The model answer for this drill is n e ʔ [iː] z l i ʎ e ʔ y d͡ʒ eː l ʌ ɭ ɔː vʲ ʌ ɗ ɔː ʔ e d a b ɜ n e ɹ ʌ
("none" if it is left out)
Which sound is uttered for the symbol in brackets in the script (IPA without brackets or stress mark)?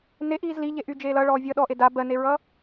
iː